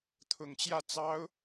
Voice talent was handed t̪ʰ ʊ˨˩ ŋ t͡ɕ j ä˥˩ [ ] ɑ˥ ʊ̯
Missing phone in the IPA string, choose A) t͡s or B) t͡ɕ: A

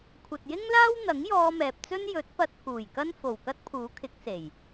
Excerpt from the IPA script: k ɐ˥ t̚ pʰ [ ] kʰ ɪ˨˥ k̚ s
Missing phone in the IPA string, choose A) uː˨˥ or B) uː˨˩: A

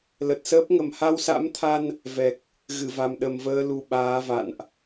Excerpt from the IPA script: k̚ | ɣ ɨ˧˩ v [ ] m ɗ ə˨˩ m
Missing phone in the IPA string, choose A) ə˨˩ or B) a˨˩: B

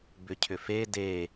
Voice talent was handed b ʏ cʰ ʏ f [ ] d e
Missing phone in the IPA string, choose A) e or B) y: A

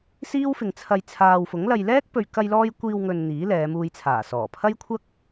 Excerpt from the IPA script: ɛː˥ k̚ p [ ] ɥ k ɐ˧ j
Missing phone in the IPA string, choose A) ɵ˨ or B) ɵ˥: A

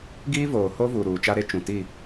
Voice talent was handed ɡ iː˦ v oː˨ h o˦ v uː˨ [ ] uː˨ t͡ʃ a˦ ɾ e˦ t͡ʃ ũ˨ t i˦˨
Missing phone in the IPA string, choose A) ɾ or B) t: A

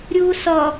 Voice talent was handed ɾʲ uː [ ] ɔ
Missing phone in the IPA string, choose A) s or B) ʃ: A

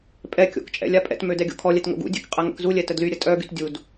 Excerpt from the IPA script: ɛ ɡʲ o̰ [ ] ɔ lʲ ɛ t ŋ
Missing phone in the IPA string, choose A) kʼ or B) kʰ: B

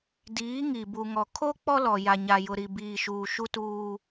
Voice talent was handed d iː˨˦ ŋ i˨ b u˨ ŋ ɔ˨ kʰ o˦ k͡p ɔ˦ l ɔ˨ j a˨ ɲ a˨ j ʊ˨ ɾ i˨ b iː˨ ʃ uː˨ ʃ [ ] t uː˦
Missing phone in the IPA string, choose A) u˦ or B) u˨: A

